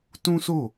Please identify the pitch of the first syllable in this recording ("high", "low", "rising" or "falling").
high